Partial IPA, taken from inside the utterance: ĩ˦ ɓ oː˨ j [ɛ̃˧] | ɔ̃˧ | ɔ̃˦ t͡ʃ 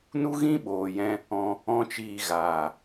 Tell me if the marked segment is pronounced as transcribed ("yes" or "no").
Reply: yes